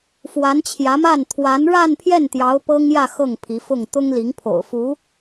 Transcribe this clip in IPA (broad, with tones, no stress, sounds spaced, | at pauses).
f w a˧˥ n t͡ɕʰ j ä˧˥ m a˥˩ n t̪ʰ w a˧˥ n ɻ a˥˧ n pʰ j ɛ˥˩ n t̪ j ɑ˧˥ ʊ̯ p ɤ˥ ŋ j ä˥˧ x ɤ˥˩ ŋ pʰ i˧˥ f ʊ˥˩ ŋ t̪ ʊ˥ ŋ l i˧˥ ŋ pʰ o̰˨˩ ʊ̯ f u˧˥